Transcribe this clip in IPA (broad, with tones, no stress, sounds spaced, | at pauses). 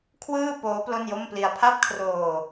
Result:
kʰ w ɯː˥˩ p oː˦˥ p l o˥˩ n j o˥˩ m p l i˧ a̯ pʰ a˥˩ p̚ kʰ r oː˧